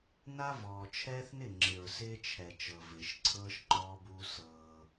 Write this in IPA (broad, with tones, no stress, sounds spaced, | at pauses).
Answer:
n a˦ v ɔː˨ t͡ʃʰ ɛː˦ θ n ɪ˦˨ ŋ͡ǁ ɪ˨ ɹ s ɪː˦ t͡ʃʰ ɛ˨ t͡ʃ ɤ˨ v ɪː˨ ʃ ǀʰ ɤː˦ ʃ ŋ͡ǃ ɔː˦ b uː˦ s ɤː˦